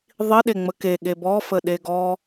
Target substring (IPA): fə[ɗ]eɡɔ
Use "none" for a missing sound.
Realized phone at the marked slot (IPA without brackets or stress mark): ɗ